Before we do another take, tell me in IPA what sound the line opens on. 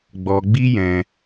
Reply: ɡ͡b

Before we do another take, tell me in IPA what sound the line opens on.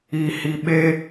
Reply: i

